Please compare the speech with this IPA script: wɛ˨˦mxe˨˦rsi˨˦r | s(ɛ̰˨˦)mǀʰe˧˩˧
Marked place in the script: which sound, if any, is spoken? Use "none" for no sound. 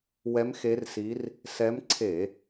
ɛ˨˦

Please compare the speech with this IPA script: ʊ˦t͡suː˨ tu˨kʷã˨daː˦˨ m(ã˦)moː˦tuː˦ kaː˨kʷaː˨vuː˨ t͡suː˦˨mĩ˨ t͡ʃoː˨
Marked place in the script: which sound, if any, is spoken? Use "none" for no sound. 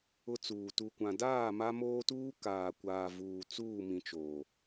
a˦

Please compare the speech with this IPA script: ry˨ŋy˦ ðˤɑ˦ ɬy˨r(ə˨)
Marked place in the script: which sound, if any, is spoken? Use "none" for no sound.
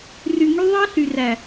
æ˨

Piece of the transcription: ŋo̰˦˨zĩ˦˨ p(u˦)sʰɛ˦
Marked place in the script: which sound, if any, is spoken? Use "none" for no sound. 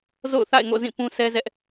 ũ˦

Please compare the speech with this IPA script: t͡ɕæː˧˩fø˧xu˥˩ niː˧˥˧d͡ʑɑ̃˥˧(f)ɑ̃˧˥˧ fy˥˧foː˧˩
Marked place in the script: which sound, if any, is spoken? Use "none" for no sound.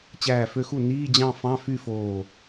f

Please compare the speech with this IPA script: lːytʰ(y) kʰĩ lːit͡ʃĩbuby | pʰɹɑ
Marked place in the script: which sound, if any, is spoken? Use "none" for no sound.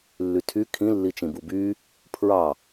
y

